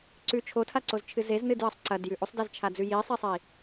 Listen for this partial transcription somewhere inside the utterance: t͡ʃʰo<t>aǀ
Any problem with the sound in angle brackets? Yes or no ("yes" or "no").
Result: yes